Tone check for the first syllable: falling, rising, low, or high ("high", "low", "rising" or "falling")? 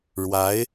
rising